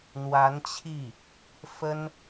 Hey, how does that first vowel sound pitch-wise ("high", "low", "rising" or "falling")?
rising